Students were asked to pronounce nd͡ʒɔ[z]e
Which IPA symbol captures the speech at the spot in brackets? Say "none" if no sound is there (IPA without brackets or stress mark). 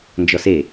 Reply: s